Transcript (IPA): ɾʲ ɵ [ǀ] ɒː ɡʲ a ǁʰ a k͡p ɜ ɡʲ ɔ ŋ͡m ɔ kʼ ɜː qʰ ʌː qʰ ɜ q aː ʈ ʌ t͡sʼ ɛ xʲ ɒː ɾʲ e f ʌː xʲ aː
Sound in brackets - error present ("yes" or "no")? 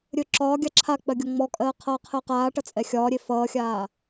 yes